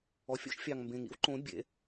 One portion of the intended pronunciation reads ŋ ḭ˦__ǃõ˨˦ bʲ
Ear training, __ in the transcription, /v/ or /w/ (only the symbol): w